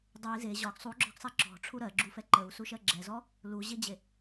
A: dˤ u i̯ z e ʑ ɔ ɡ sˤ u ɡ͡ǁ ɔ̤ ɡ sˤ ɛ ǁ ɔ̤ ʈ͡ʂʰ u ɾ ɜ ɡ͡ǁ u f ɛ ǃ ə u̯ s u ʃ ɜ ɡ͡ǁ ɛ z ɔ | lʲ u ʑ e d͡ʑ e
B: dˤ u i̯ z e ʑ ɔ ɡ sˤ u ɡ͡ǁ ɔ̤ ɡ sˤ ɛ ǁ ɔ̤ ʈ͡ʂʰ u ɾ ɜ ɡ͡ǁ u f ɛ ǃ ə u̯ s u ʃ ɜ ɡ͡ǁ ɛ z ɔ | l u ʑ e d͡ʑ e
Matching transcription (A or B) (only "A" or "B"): B